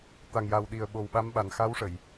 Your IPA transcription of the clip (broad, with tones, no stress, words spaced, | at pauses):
t̪a˨˩ŋja˨˩w ɗi˨˩ə̯ɓo˨˩w ɓa˧˥mɓa˨˩n xa˧˥wʂə˨˩˨j